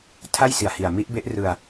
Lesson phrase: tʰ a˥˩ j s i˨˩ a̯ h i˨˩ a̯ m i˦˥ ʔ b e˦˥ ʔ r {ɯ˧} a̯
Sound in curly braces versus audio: correct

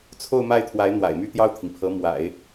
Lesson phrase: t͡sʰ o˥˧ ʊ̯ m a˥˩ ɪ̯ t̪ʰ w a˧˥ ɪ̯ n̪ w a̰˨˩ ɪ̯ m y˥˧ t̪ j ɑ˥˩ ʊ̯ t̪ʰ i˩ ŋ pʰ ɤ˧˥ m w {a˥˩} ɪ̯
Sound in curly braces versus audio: incorrect: a̰˨˩˦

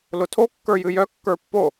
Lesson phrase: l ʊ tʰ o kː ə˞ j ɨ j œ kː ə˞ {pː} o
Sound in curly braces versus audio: correct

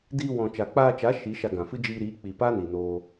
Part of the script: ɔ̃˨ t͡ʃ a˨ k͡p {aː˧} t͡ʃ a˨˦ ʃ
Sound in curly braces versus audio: correct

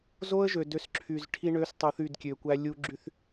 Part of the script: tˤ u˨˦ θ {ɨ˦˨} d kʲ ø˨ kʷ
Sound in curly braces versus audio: incorrect: y˦˨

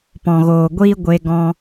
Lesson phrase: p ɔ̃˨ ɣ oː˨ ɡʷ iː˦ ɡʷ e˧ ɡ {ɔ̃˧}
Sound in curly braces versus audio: correct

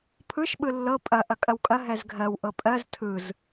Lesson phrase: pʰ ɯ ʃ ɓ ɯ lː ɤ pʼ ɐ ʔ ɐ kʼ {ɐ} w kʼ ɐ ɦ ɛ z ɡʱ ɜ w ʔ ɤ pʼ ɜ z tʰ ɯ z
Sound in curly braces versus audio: correct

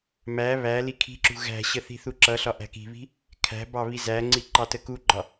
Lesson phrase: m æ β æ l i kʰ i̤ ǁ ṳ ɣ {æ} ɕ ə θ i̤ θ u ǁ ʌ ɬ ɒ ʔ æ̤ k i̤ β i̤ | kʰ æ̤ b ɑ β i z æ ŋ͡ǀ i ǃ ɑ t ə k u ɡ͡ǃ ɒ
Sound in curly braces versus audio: incorrect: æ̤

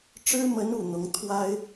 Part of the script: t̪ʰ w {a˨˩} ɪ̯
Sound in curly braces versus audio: incorrect: a˥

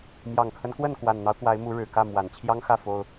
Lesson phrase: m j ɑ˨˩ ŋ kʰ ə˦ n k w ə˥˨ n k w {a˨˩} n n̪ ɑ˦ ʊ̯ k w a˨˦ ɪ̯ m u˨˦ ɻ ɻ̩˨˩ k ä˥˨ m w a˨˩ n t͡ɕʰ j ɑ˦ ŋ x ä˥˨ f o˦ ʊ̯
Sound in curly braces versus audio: correct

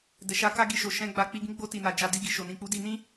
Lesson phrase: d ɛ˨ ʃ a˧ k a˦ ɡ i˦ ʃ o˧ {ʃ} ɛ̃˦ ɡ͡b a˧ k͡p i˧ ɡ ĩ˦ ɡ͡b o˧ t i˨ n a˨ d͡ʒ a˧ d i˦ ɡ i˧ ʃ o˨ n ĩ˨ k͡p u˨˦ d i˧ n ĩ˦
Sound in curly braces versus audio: correct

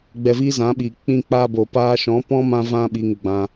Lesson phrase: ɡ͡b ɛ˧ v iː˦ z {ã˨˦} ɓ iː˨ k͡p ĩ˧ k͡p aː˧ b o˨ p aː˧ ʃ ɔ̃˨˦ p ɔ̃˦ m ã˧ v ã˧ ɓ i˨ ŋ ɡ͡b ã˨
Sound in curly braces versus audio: correct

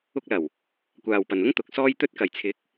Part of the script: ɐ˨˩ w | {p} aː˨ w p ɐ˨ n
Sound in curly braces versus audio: incorrect: kʷ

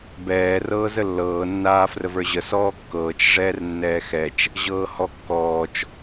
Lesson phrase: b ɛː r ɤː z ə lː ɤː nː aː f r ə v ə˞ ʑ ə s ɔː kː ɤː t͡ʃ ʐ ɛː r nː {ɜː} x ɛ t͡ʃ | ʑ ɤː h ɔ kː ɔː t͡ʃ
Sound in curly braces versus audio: incorrect: ɛː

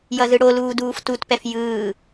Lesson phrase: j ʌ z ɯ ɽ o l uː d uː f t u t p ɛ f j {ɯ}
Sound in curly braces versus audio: incorrect: ɯː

